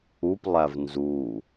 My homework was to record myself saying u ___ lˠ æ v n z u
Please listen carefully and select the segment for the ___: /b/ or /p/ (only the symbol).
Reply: p